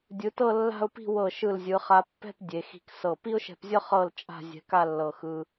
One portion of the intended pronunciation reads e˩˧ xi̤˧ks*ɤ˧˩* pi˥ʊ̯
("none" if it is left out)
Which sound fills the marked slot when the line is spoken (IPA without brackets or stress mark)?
ɤ˧˩